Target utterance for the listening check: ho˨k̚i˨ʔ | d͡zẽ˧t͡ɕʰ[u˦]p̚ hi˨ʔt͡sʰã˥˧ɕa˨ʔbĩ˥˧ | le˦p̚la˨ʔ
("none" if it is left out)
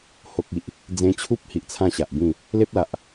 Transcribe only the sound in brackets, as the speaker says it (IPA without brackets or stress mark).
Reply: u˦